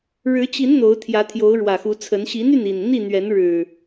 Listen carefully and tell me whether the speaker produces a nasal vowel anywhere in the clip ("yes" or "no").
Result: no